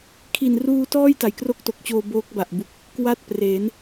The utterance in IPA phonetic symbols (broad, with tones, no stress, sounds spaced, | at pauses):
kʰ i˨˩ n r uː˧ t ɔː˥˩ j t a˨˩ j k r o˥˩ k̚ t o˨˩ k̚ t͡ɕ oː˧ b oː˦˥ k̚ b a˨˩ ʔ b u˨˩ k̚ | k w a˥˩ t̚ p r e˩˦ n